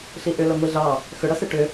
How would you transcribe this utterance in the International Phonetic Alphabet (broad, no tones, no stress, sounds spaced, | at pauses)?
ɬ i ʔ ʏ l ɐ ŋʷ i ɮ ɑ | x ʏ ɽ ɐ s e ʈ ʏ